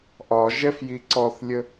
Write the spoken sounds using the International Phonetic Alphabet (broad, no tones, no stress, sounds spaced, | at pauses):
ʔ ɒ ʒ ɛ f j i ǀ ɔ θ lʲ ə